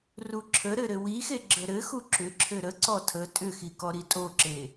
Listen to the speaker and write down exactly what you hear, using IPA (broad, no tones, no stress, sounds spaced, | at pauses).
r u ǁʰ ə ɾ ɘ ɾ ɘ w i x e ɡ͡ǁ ə ɾ ɘ x u ǁ ʏ ǁʰ ɘ ɾ ə ǀ ɔ tʰ ə tʼ ʏ x i k ɔ ɾ i tʼ o ǁ e